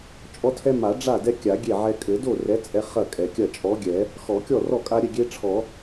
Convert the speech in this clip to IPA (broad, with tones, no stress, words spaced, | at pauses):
t͡ʃʼɔ˦tʰɛ˦ ma˨˩˦ ɖ͡ʐa˥˩dɛ˦kʲa˨˩˦ ɡʲe˥˩ʕɛ˦ kʼɘ˨˩˦do˥˩rɛ˨˥ t͡sʼɛ˦ χɐ˥˩kʼɛ˨˩˦kʲɐ˥˩ t͡ʃʼɔ˨˥ɡʲɛ˨˩˦ | xɔ˨˩˦kʲɔ˥˩rɔ˥˩kʼa˦ ɾʲɘ˥˩ɡʲe˦ʈ͡ʂʰɔ˨˩˦